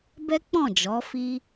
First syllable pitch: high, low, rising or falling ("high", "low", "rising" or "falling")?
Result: high